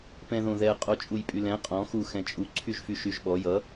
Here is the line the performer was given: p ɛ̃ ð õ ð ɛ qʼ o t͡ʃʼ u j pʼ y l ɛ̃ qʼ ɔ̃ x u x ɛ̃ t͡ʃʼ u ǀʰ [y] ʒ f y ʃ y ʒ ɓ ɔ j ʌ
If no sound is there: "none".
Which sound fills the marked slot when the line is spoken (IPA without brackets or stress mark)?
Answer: y